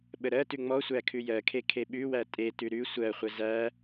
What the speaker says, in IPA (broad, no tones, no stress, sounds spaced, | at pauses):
ɓ ə ɾ ɜ t ʉ ŋ͡m ɔ sʷ æ kʰ ʉ j ɜ kʰ e kʰ e ɓ ʉ w æ tʼ e t ʉ ɾ ʉ sʷ ɜ χʷ ə z æ